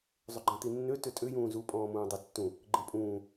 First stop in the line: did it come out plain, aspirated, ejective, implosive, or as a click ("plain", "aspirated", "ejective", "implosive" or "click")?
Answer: click